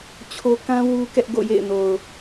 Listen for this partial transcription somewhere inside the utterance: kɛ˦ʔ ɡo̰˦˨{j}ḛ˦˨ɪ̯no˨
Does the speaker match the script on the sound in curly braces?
yes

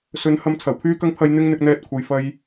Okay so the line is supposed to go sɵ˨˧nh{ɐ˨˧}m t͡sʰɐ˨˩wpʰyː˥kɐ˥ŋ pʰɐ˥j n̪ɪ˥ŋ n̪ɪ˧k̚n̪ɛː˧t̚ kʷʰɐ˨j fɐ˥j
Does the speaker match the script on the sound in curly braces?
no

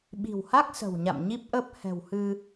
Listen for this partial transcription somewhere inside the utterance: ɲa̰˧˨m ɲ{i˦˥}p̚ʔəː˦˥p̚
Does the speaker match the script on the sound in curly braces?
yes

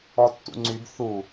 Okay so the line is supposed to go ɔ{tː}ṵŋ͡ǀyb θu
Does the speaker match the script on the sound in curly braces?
yes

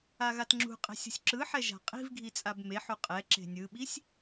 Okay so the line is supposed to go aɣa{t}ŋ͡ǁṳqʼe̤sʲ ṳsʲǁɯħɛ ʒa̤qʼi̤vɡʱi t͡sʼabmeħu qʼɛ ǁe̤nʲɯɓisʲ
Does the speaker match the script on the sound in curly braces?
yes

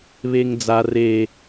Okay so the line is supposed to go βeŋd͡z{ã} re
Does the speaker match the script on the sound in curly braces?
no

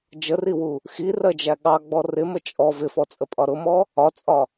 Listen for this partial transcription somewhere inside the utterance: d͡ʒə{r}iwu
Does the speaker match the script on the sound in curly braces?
yes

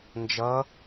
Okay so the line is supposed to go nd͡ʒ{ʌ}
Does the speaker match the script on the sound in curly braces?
yes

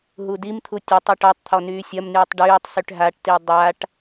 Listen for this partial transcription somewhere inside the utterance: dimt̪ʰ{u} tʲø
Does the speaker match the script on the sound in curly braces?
yes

